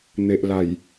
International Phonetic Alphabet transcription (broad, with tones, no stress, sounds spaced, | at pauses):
n̪ e˨ ʔ l a˨˩ j